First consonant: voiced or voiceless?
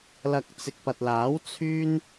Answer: voiced